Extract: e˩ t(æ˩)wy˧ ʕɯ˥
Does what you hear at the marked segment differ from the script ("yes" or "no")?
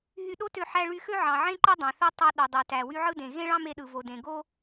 no